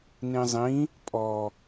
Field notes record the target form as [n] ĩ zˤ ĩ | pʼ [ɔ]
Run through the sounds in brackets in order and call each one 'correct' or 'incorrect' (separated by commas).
correct, correct